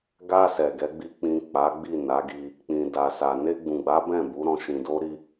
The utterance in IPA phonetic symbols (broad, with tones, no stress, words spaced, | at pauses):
ɡa˧ sɛ˨ɡɛ˨˦ɡ͡bi˧ k͡pĩ˨ k͡pa˨˦ ɡ͡bi˦˨na˨˦ɡi˧ | k͡pĩ˨da˨sa˨ ne˧ɡ͡bũ˨ɡ͡ba˨˦ bɛ̃˦˨bu˨˦ ɾɔ̃˧ʃĩ˧do˦ ɾi˦